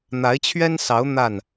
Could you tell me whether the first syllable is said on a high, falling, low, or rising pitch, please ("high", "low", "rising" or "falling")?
rising